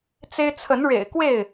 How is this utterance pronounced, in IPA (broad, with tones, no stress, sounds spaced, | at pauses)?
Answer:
t͡s e˦ ɪ̯ t͡sʰ ə˨˦ n ɻ ḛ˨˩ ɪ̯ k w e˥˨ ɪ̯